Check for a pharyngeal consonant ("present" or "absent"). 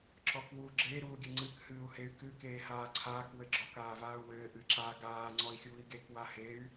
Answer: absent